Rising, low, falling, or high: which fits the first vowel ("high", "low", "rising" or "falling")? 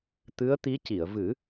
rising